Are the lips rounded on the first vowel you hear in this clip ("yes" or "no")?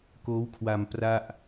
yes